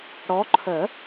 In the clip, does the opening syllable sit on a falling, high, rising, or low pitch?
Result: rising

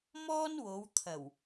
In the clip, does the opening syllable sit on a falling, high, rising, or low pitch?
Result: high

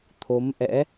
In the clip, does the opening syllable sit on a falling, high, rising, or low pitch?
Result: rising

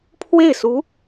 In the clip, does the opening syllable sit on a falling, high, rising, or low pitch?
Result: falling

